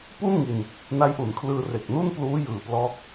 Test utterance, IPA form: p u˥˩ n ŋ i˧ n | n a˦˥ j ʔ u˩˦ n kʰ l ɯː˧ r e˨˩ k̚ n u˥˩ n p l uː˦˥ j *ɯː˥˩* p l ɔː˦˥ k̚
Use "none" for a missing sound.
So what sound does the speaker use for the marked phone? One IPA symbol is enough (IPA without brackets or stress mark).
ɯː˨˩